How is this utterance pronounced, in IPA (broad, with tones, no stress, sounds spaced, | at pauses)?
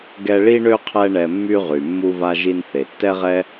ɡ ɛ˦ ɭ i˥ ɳ ø˥ qʰ ɛ˦ ɳ ɛ˨ mː y˦ ʁ y˩ mː u˦ v a˦ ʒ i˦ n θ e˩ tː ɛ˥ ʁ ɛ˥